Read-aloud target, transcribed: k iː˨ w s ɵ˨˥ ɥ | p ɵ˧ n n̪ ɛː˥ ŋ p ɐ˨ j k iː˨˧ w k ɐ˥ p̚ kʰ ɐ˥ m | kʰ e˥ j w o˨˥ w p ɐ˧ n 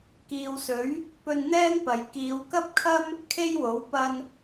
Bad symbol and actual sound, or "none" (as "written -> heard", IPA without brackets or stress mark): none